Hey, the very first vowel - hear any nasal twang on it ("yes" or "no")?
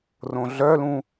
yes